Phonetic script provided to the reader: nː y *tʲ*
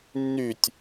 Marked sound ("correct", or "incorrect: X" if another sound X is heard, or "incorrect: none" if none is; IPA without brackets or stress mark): correct